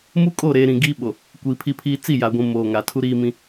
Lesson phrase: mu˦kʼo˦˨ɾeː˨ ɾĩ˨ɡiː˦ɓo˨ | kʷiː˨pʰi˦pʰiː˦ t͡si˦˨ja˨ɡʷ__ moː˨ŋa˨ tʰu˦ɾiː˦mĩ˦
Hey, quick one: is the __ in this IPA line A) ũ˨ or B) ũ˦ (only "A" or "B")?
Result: A